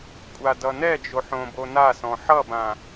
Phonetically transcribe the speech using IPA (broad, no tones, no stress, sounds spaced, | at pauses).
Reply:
kʷʼ a d ʌ n ɛ d͡ʒ o ħ õ b o n a s ɔ̃ ħ ʌ b ã